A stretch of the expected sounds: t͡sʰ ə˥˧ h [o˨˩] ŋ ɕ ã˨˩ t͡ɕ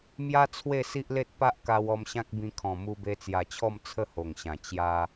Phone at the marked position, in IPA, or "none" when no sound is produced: o˨˩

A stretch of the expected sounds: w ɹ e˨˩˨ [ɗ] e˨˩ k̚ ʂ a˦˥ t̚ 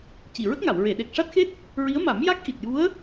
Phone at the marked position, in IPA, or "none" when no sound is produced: ɗ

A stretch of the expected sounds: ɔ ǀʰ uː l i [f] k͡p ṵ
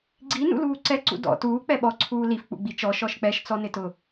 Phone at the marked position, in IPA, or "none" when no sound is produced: f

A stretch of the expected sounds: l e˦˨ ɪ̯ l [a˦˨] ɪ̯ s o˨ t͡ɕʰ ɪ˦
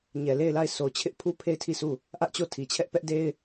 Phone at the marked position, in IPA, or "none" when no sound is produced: a˦˨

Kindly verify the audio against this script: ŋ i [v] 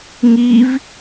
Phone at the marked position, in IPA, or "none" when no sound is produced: v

